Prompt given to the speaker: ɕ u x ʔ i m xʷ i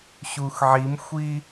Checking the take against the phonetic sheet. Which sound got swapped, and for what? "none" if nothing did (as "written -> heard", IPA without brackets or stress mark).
ʔ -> ʕ